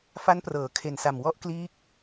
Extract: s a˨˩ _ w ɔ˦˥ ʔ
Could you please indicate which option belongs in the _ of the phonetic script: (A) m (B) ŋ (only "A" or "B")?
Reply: A